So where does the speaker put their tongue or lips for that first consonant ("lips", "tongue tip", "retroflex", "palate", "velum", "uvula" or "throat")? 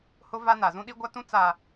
throat